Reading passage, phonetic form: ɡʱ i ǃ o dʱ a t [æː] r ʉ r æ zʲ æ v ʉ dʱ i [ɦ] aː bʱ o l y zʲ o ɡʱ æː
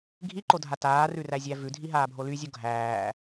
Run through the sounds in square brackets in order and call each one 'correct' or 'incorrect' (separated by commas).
incorrect, correct